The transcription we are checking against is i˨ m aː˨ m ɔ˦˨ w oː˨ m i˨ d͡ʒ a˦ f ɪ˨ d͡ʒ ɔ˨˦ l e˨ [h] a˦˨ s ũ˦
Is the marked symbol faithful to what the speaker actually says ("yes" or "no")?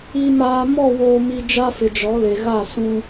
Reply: no